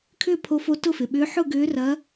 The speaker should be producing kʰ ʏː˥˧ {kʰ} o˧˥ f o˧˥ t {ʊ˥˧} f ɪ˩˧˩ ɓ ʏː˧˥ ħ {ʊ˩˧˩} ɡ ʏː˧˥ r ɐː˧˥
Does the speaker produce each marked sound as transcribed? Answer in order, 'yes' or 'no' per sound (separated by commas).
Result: no, yes, no